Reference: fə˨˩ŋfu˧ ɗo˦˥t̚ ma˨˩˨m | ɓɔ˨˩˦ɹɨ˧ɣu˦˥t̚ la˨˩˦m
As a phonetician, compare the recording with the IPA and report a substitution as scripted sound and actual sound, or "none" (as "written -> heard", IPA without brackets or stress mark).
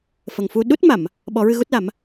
o˦˥ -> u˦˥